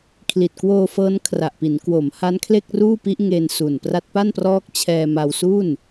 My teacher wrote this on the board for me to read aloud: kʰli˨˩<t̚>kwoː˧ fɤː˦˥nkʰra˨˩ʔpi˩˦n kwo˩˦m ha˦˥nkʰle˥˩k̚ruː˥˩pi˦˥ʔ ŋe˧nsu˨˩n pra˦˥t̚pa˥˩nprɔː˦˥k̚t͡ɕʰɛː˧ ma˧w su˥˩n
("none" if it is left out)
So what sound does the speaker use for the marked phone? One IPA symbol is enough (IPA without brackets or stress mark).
t̚